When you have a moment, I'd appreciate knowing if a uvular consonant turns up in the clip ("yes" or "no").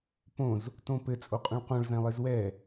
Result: yes